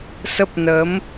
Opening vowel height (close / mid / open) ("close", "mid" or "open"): mid